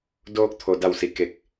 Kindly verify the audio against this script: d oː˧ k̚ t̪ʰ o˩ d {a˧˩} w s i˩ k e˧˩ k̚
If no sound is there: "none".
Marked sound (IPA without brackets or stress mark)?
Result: a˧˩